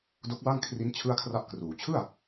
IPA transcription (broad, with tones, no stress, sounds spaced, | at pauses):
d o˦˥ k̚ w a˥˩ ŋ kʰ r i˦˥ n t͡ɕʰ ɯ˥˩ a̯ kʰ r a˥˩ ʔ k r uː˩˦ t͡ɕʰ ɯ˥˩ a̯